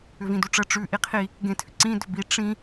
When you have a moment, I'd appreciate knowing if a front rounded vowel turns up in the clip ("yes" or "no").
yes